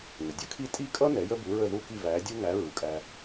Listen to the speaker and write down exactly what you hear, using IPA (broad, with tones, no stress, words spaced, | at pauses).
ŋə˩dʲʌ˥kʰi˥˩ tʼi˥˩kʼʌ˥ nɛ˩˥jə˥bu˩˥ ɹə˥˩ðu˥˩ki˥˩ væ˩˥dʲu˥ŋæ˩˥ ɹu˩kʼæ˧